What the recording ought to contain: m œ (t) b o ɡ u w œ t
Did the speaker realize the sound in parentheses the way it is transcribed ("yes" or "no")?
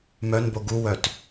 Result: no